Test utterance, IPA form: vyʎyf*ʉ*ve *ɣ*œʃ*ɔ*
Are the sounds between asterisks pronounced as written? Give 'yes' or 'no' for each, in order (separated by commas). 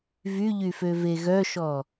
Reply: no, yes, yes